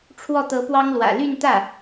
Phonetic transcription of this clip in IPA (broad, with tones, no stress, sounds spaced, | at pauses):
ʈ͡ʂʰ w ɔ˥˩ t̪ ɤ˧˥ p w ɑ˥ ŋ l w ä̰˨˩ l y˥˧ n t̪ ä˥˩